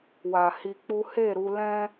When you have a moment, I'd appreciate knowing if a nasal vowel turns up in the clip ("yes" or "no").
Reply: yes